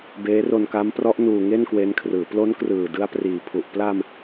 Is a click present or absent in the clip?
absent